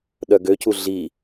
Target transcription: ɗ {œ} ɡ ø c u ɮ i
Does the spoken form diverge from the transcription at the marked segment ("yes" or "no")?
no